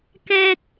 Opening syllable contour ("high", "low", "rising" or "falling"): high